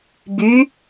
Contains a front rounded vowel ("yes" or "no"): yes